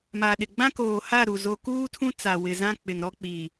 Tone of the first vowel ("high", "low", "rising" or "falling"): low